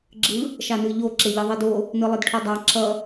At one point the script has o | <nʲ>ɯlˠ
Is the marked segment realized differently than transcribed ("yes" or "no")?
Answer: yes